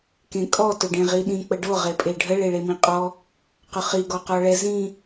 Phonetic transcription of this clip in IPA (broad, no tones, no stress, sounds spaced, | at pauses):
k ẽ kʼ ɔ t ʊ ɖ ẽ ʁ i ɗ ĩ k͡p ə ɖ o ʁ e pʼ e ɖʱ ə ɭ e ɭ e m ĩ qʼ ɔ | q ʊ χ i ɡ ɔ q ɔ ɭ ɛ z ĩ